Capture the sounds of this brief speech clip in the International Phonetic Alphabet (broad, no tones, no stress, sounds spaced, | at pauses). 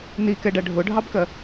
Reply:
n i k ɛ ɖ æ ɖʱ ʊ ɖʱ ɑ b k ɜ